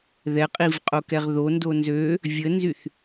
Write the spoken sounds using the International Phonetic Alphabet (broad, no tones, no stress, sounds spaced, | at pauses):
ð ɛ qʼ i v qʼ o k ɛ ʁ ð o n d o n z ø | vʲ ə n z y θ